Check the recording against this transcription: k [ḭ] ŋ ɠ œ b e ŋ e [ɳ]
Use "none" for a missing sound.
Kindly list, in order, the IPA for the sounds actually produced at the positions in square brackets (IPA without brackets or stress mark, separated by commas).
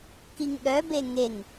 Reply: i, ŋ